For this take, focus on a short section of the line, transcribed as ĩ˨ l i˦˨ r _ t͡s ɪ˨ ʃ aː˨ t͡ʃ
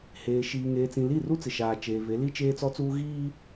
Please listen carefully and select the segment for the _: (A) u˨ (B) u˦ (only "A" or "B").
B